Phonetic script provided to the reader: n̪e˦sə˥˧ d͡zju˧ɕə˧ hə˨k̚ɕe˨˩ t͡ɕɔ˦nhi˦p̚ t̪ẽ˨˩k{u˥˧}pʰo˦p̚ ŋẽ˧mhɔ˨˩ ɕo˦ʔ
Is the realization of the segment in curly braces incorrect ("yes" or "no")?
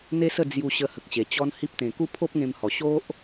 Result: no